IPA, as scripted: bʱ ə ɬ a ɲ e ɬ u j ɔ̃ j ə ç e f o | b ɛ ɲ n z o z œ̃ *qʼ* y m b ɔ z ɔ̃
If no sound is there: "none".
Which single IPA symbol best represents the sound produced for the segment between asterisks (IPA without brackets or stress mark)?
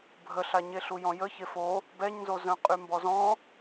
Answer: qʼ